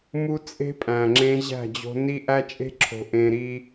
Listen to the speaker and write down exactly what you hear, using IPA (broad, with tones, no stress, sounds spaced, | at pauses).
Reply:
m u˦ t͡sʼ e̤˦ pʼ æ̃˨ ŋ͡ǁ ẽ˦ ʑ æ̤˦˨ d͡ʑ o̤˦ n i˦ ʔ æ˦ t͡ʃʼ e̤˦ ǁʰ o̤˨ ʔ ẽ˨ ɾ i˦